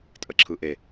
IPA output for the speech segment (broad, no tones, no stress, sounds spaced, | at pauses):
tʼ ə ǁʰ ɯ ʔ e